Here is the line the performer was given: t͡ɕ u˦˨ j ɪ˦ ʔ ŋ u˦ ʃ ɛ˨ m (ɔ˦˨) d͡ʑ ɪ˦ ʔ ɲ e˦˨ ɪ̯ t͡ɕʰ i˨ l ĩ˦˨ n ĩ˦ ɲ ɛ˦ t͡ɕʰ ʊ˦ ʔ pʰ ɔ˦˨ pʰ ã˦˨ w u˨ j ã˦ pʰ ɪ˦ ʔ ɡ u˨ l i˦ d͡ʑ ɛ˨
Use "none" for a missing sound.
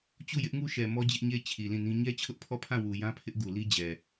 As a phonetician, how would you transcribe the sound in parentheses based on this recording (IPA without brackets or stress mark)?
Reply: ɔ˦